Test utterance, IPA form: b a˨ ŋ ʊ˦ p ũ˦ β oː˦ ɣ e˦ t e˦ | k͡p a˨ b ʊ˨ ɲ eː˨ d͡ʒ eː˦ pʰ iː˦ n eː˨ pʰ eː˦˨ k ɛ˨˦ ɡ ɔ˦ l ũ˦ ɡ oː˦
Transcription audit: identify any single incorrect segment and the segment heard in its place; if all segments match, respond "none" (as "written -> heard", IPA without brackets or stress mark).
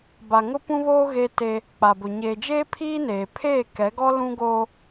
none